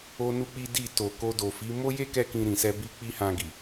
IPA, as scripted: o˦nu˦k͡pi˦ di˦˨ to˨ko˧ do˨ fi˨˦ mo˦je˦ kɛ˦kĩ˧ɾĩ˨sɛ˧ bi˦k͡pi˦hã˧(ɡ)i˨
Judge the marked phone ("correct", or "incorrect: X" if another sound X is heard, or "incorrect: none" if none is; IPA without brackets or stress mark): correct